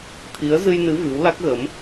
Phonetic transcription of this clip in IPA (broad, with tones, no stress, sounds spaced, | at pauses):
t̪ʰ i˨˦ ə̯ z ɨ˧ j n ɨ˨˦ v ɨ˨˦ w l a˦˥ k̚ ɣ ə˨˦ m